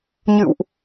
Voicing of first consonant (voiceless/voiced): voiced